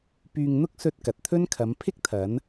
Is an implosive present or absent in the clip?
absent